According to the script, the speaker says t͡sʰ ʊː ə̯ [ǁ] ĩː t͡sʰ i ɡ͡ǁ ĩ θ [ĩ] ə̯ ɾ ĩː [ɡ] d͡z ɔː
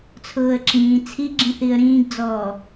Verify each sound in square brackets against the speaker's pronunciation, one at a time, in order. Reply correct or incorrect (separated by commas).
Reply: correct, incorrect, correct